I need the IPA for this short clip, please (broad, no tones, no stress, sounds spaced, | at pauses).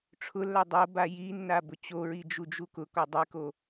ʈ͡ʂʰ ʊ lː a dˤ o b a j i nː a b ʊ t͡ɕ o ɹ i d͡ʒ u d͡ʒ u k ʊ k ɔ dˤ i k o